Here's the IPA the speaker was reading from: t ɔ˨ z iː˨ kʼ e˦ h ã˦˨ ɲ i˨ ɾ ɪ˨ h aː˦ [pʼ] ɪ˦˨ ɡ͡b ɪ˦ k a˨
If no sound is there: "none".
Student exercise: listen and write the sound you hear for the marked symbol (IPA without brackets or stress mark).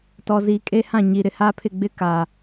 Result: pʰ